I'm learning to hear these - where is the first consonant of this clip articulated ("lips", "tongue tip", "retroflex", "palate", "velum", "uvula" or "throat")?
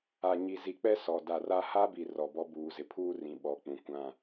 palate